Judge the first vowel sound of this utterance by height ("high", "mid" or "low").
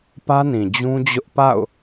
low